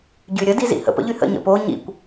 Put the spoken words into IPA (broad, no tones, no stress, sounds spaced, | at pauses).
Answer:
ɟ y ɾʲ ə d i z ḭ h ə̰ p ə̰ ʎ y h ə̰ ɲ ə̰ p o ɲ ḭ kʷ